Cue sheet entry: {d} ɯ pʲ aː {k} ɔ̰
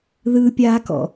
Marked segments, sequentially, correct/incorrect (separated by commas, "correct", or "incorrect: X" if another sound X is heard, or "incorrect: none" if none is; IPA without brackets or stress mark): incorrect: ð, correct